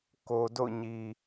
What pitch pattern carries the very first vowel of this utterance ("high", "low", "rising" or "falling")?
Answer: low